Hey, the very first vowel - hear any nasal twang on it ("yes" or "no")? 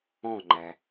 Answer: yes